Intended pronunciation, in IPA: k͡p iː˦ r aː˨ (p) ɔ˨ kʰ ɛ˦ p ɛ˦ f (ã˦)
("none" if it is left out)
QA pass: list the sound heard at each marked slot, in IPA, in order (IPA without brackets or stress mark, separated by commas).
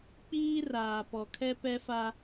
p, a˦